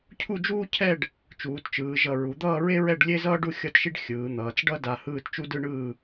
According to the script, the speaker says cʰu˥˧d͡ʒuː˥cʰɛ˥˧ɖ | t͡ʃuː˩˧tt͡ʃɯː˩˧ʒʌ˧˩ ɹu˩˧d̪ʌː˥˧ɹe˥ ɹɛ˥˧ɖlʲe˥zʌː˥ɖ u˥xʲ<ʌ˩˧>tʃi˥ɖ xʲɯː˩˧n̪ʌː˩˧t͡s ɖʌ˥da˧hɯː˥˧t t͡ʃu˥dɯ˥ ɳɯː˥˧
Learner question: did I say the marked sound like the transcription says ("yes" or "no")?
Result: no